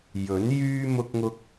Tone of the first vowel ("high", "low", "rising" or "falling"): rising